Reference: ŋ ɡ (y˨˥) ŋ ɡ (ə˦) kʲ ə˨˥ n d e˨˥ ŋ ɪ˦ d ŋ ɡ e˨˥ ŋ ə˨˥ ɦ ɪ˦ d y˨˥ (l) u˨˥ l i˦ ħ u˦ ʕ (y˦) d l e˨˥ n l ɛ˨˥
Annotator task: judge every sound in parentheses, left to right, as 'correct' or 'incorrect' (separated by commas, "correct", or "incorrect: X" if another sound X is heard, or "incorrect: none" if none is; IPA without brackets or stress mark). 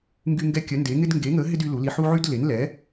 incorrect: y˦, incorrect: ɛ˦, correct, correct